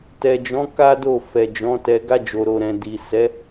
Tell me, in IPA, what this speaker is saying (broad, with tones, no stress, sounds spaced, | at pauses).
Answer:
t ɛ˨ d͡ʒ ɔ̃˨˦ k a˦ d o˦˨ f ɛ˨ d͡ʒ ɔ̃˨˦ t ɛ˧ ɡ a˧ d͡ʒ o˨ ɾ o˨ ɾ ɛ̃˨ d i˨ s ɛ˨˦